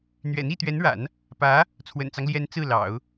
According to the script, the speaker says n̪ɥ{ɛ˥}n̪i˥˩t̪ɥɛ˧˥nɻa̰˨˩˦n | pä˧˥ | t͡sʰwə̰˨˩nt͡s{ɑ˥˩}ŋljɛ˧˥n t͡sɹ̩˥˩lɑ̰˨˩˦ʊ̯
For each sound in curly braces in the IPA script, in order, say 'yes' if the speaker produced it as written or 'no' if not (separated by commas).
no, no